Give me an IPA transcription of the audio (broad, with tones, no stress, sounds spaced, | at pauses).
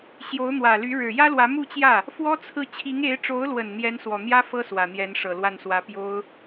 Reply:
ɕ j o˧˥ ʊ̯ n̪ w ä˨˩ l y˧˥ ɻ ɻ̩˨˩ j ä˥ l w ä˧˥ m u˥˧ t͡ɕ j ä˥˩ | f w ɔ˥ t͡sʰ ɹ̩˥˩ t͡ɕʰ i˧˥ ŋ e˧˥ ɪ̯ ʈ͡ʂ o˧˥ ʊ̯ l w ə˨˩ n n̪ j ɛ˧˥ n s w ɔ˨˩ n̪ j ä˥ f ɤ˥ s w ä˨˩ n̪ j ɛ˧˥ n ʂ ɤ˨˩ l w a˥˩ n s w ä˧˥ p j o˥ ʊ̯